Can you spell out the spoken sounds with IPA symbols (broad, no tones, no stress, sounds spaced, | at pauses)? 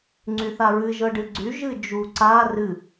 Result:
ŋ͡ǀ y θ a ɹ ɨ ʒ ɤ ɖ ɨ ɡ͡ǀ y ʒ ɨ d͡ʒ u ǀ a r ɨ